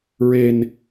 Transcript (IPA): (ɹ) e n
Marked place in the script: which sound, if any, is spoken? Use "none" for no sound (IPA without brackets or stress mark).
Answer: ɹ